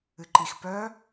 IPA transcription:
ɨǃix pœ

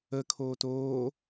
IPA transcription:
ə kʰoːtoː

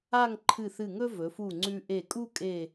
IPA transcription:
a˥˧ŋ ǃʰɨ˧˩ θɨ˧˩ŋɵ˥ vɵ˩˧fu˧˩ŋ͡ǀʉ˧ ʔe˧˩kʼu˥kʼe˧˩

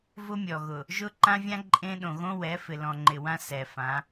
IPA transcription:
vʊ˦mʲɔ˨ɣʊ˨ | ʒʊ˦ ǃã˦vʲã˦ ǃʼẽ˦ ɗõ˨ɣõ˦wɛ˨˦fɪ˨ lɔ̃˨ŋ͡ǃɪ˨wã˦ sɛ˨fã˨˦

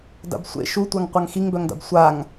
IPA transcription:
da̰bsʷḛ ʃutʷaŋ qʷaŋxiŋbœŋda̰b sʷaŋ

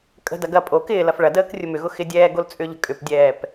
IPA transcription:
kʼə̤dɐ ɡɐ pʼo kɪːlɐf ɭɐdəːk rʲʊmʏɣʊ xɪdʲɛː ɡolt͡sʼʏʎə̤ kʼʏpdʲɛːp

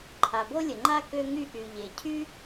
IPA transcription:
ǃʰa˩bo˥lʲə˩ŋ͡ǃa˥ kø˥ŋy˥ ʔy˩ ʎe˩ cʰy˥

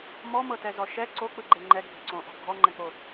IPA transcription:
mɔmɤtɛzɔ ʃɛ ǀok͡pɯɡ͡ǃe ŋ͡ǃɛɡʱi̤ ǀõʔɔ̤ ɡʱɔŋ͡ǃɛ̃k͡po

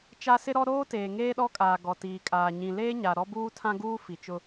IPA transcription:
t͡ʃa˦sɪ˦ɾɔ˦ ɾoː˦teː˨ ŋeː˦ɗɔ˦kʼaː˨ ɡɔ˨tiː˨kʼaː˨ ɲĩ˨leː˦ɲa˨ ɾɔ˦buː˦tʰã˦ɡuː˦ fi˨t͡ʃʊ˦

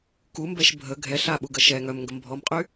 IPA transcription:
kumbɛʃ bʱə ɡʱɛɬ aɓuɡə ʃɛ ŋœmŋɡəm bʱɔmqʼy

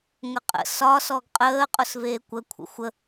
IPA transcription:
ŋəqʼə̰ sɒ sɔɡqʼəː qʼʊsveːkʷə kʷʰə̰xʷə

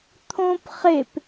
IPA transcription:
t̪ʰõp χep

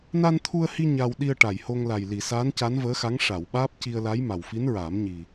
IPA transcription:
na˧nt̪ʰu˧ə̯hi˧ ɲa˧w ɗi˧ə̯ʈa˨˩jho˧ŋ la˨˩jli˨˩˨ saː˧˥nca˧˥nvəː˧˥xa˧˥ŋ ʂa˨˩˨w ɓaː˦˥p̚ci˧ə̯la˧˥j ma˨˩wfi˧˥nɹaː˨˩˦mɲi˨˩

